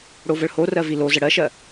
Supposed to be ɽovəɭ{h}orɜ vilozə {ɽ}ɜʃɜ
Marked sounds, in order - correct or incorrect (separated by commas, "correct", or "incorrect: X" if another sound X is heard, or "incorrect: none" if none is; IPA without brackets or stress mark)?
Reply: correct, correct